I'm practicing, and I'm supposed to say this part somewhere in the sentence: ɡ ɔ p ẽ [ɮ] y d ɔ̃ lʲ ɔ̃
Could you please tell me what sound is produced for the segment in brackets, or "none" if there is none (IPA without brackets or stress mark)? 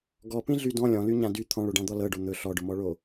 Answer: ɮ